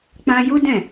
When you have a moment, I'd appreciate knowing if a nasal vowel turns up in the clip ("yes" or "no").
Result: yes